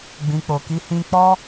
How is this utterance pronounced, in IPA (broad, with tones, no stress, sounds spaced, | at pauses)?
ɡ͡b ĩ˨ k͡p o˨ k i˧ h ĩ˦ k͡p ɔ˦